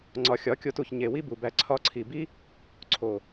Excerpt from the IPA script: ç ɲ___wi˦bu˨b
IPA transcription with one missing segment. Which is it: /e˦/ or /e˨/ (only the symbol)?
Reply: e˨